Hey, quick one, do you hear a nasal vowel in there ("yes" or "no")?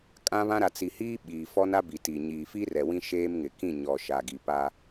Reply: yes